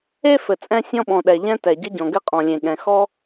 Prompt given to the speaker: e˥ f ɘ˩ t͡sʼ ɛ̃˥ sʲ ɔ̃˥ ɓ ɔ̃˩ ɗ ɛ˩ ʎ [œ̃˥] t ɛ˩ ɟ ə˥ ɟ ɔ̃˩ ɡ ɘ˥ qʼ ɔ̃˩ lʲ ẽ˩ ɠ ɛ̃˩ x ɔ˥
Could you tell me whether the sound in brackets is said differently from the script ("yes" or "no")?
yes